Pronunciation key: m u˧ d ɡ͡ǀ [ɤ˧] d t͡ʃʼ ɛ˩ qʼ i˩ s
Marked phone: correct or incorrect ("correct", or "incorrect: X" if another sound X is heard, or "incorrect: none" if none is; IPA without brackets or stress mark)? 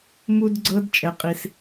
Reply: correct